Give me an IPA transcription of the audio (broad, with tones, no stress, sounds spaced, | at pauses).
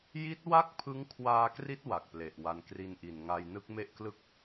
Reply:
j i˦˥ t̚ w a˥˩ k̚ pʰ ɯ˦˥ ŋ kʰ w aː˧ k r i˦˥ t̚ w a˨˩ k̚ p l e˨˩ ʔ w a˧ n k r i˧ n ʔ i˨˩ n ŋ a˧ j n ɯ˦˥ k̚ m e˥˩ ʔ k l ɯ˥˩ k̚